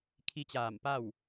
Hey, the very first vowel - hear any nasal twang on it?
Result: no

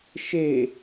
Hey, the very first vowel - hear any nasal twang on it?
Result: no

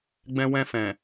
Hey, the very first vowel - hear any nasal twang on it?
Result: yes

